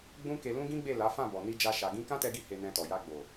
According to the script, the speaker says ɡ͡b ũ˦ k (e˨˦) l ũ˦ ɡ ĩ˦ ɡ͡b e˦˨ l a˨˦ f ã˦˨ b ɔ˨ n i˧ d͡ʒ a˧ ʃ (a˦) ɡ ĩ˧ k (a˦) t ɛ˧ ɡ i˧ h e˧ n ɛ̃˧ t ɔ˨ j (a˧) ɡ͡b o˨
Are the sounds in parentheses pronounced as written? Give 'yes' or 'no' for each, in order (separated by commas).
no, no, no, yes